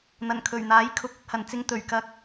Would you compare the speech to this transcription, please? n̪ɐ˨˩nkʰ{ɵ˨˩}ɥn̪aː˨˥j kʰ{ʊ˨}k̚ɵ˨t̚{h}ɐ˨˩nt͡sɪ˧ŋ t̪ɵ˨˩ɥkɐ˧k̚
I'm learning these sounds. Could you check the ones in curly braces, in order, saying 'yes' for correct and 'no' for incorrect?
yes, no, yes

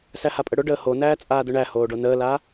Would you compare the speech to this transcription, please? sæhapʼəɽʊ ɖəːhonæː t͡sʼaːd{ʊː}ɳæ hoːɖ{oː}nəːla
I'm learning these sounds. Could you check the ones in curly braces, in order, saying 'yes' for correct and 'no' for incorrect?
no, no

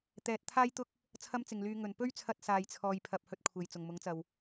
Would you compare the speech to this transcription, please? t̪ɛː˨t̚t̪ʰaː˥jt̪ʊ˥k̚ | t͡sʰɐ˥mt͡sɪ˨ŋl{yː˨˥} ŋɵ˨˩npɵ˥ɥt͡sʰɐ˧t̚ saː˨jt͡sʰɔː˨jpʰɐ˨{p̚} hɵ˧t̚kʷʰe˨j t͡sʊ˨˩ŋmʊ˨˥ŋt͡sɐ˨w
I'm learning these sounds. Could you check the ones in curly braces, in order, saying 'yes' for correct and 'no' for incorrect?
no, yes

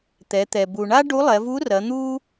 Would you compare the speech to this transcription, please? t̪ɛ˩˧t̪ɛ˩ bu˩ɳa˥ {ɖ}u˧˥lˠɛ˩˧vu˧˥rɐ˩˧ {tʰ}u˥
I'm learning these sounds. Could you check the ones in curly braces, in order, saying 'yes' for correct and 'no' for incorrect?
yes, no

